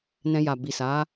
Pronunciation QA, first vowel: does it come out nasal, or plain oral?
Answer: nasal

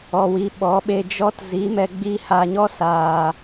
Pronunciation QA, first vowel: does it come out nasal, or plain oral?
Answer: oral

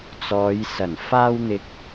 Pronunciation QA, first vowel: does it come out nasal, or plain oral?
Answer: oral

